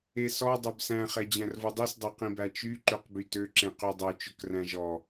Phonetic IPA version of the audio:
e s ɔ dˤ œ b s æ̃ χ ɛ d͡ʑ æ̃ r v o dˤ i s dˤ o q ĩ b æ t͡ʃ y ǃ ø q b y t ø ǁ ẽ q y dˤ ø t͡ʃ ɵ k r æ̃ ʒ ɔ

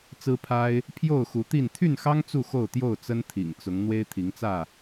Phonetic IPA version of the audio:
t͡s ɹ̩˦ pʰ a˦ ɪ̯ | pʰ j o˥˨ ʊ̯ x u˨˦ t̪ i˥˨ n t̪ʰ y˥˨ n x ɑ˦ ŋ t͡s u˥˨ x o˥˨ ʊ̯ t̪ j o˥˨ ʊ̯ t͡s ə˦ n t̪ʰ ḭ˨˩ ŋ t͡s ʊ˨˦ ŋ n̪ w e˦ ɪ̯ t̪ʰ i˨˦ ŋ t͡s ä˥˨

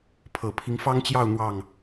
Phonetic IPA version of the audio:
pʰ ɤ˨˩ pʰ i˦ ŋ f ɑ˦ ŋ t͡ɕ j ɑ˥˨ ʊ̯ n̪ w ɑ˥˨ ŋ

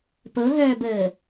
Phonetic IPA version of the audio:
p ɤ ɦ œː b əː

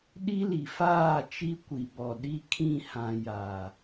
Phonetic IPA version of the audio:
ɗ i˦ l i˨ f aː˦˨ t͡ʃ i˦ kʷ i˨ b ɔ˨ ɗ i˦ kʰ ĩ˦˨ h ã˨ j a˨

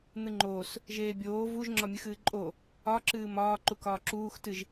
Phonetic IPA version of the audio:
n̪ ɨ ŋ͡ǃ oː s | ʒ eː bʲ oː v u ʒ ŋ͡ǁ ɒ mʲ ɨ x ɨː ǃʼ o | ɒ ǁ ɨː m ɒː ǃ u k ɒː ǁ uː x t ɨ ʒ

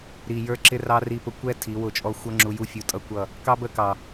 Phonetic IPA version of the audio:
ɾ i˨ j ə˞˦ ǁ ɪ˦ r ɑ˦ r i˧ p ʊ˧ kʷ ɛ˦ tʰ i˨˦ w ʊ˦˨ t͡ʃʼ ɔ˦ xʷ ʌ˦ ŋ͡ǁ u˧ j u˦ fʲ u˧ tʼ ʌ˦ kʷ ʌ˦˨ | k ɑ˦ b ə˦˨ k ɑ˨

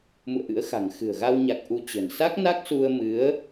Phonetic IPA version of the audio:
m ṵ˧˨ ə̯ ʔ ɨ̰˧˥ ə̯ x a̤˨˩ ŋ x ɨ̤˨˩ ə̯ ɣ a˧ w ɲ a˨˩ k̚ ʔ u˨˦ t͡ɕ ə̤˨˩ n s a˦˥ k̚ n a˦˥ k̚ s u˧ ə̯ m ɨ˨˦ ə̯

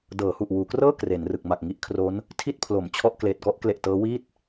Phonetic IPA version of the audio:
d ɤː˩˦ h u˨˩ ʔ w uː˩˦ k r ɤː˥˩ k r e˩˦ n r ɯ˨˩ k̚ m a˨˩ k̚ ŋ i˦˥ ʔ kʰ r o˦˥ n | tʰ i˥˩ t̚ pʰ l o˩˦ m t͡ɕʰ ɔ˥˩ ʔ k l eː˨˩ t̚ k ɔ˦˥ ʔ k l e˨˩ ʔ t ɤː˦˥ w iː˥˩ t̚

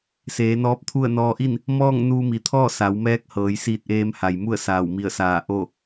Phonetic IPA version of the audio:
s eː˩˧ n ɔː˧˥ p̚ t̪ʰ u˥˨ ə̯ n ɔː˧ ʔ i˥˨ n | m ɔː˥˨ ŋ n uː˧ m i˩ t̪ʰ ɔː˥˨ s a˩˧ w m ɛː˧˥ k̚ h ɤː˩˧ j s iː˧ t̚ ʔ eː˧ m h a˩ j m u˥˨ ə̯ s aː˧˩ w m i˧˩ ə̯ s aː˧˩ ʔ o˥˨

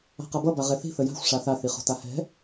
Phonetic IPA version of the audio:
a̤ q ʌ b ʌ b a ʁ ɛ θ i̤ θ ə j a̤ xʷ ʂ a θ a θ i χ o̤ t a h ɛ̤

